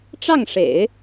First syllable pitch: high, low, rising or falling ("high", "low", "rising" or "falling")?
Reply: falling